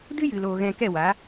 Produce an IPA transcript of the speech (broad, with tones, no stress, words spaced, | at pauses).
dɨ˦jɨ˨loː˨ ɣɛ̃˧kɛ˦˨wa˨˦